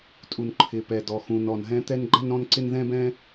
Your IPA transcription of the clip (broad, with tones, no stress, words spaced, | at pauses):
tʼu˩n ǃʰɪ˩pɛ˩dɔ˩ xũ˩nɔ˩nɦɛ̃˥ t̪ɛ˥nɡ͡ǃɛ˥nɾɔ̃˥nǀɪ˥n ðɛ̃˥bɛ̃˥